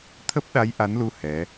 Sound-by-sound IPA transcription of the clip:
t̪ʰ ə˦˥ p̚ ɗ a˨˦ j ʔ a˨˦ n l u˧ h ɛ˨˦

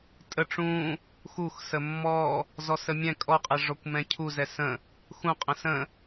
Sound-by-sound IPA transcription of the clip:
tʼ ə ʈ͡ʂ ũ | x u x s ə mː ɔ | z ɔ s ə mʲ ɛ̃ kʼ ɔ qʼ ɛ ʐ ɔ kʷ m ɛ̃ cʰ u z ɛ s ə̃ | x ũ qʼ ə̃ s ə̃

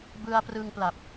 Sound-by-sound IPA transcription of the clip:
b ɯ˧ a̯ p r ɯ˧ ŋ p l a˨˩ p̚

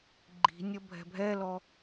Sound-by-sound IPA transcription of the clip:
ɡ͡ǃ i̤ nʲ ʌ bʱ ɛ̤ bʱ ɛ l ɔ

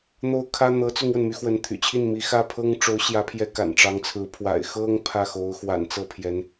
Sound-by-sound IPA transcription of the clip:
n̪ o˥ ʊ̯ kʰ ä˥ n̪ ɤ˧˥ t͡s ʊ˥ ŋ w ə˨ n m y˧˥ x w ə˧˥ n t̪ʰ y̰˨˩ t͡ɕʰ i˥˩ n m i˧˥ x ä˥˩ pʰ ɤ˥ ŋ ʈ͡ʂ o˧˥ ʊ̯ ɕ j ä˧˥ pʰ j ɛ˧˥ k a̰˨˩ n ʈ͡ʂ ɑ˧˥ ŋ t͡sʰ ɹ̩˧˥ pʰ w a̰˨˩ ɪ̯ x ɤ˥ ŋ pʰ ä˥˩ x o˧˥ ʊ̯ x w a̰˨˩ n t͡s ɤ˥˩ pʰ j ɛ˧˥ n

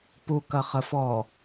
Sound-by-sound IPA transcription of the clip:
p u k ɐ χ ə f ɔ

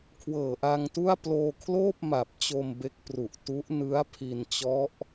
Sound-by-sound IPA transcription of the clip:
kʰ w ɤː˨˩ ʔ a˧ ŋ t u˥˩ a̯ p l oː˧ kʰ l oː˥˩ p̚ m a˨˩ p̚ t͡ɕ o˧ m b e˦˥ k̚ p r u˨˩ ʔ t u˦˥ ʔ n ɯ˦˥ a̯ pʰ i˧ n t͡ɕ ɔ˦˥ ʔ

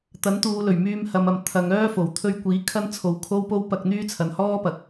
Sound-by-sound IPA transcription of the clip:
t̪ ɐ˨˥ n t̪ uː˨˧ l ɵ˨˩ ɥ m yː˧ m h ɐ˨˧ m ɐ˨ m t̪ʰ ɐ˨˧ ŋ œː˥ f o˨˩ w t̪ʰ ɵ˧ ɥ kʷ iː˨˥ kʰ ɐ˥ n t͡sʰ o˨˧ w kʰ o˥ w p o˥ w p ɐ˧ k̚ n̪ yː˥ t͡sʰ ɐ˨ n h ɔː˥ p ɐ˨˥ k̚

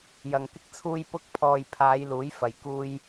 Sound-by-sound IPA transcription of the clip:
j ɐ˨ ŋ k ɪ˧ k̚ t͡sʰ uː˧ j p ʊ˧ k̚ pʰ ɔː˨ j pʰ aː˨˧ j l uː˨˥ j f ɐ˨ j k uː˧ j

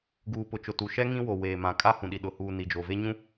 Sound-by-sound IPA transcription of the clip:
ɡ uː˨ p ʊ˨ t͡ʃ ʊ˨ t u˨ ʃ ɛ˦ ŋ ĩ˦ w o˨ w eː˨ m ã˨ kʼ a˦ h ũ˨ ɗ i˨ ɗ ʊ˨ h uː˨ n i˨ d͡ʒ o˨ v e˦ ɲ ũ˦

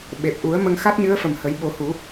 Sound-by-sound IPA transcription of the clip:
ɓ e˨˩ p̚ ʔ u˨˩˦ ə̯ m ə˧ ŋ x a˦˥ t̚ ɲ ɨ˧˥ ə̯ f ə˨˩ m h ə˨˩˦ j ɓ o˨˩˦ h u˨˩˦

